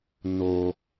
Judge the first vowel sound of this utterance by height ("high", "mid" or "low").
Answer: mid